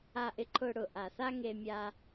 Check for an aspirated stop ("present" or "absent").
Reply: present